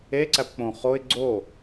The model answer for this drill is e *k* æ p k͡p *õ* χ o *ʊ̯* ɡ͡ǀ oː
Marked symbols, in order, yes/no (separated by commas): no, yes, no